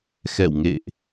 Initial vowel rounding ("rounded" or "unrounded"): unrounded